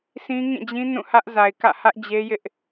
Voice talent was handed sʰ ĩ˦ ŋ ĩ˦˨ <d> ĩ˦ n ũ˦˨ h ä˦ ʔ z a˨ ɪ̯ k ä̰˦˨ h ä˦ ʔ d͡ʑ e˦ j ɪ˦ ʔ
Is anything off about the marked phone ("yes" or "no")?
yes